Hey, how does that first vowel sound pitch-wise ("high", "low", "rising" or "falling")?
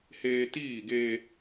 high